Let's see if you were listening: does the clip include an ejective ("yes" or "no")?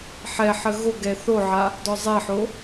no